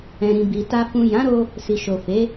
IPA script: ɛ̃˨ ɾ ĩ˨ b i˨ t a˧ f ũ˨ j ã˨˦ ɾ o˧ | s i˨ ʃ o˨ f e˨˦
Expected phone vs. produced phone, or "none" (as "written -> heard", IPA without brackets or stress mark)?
none